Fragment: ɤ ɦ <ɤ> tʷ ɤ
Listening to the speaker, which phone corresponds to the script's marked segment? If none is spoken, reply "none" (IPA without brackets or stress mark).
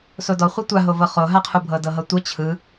ɤ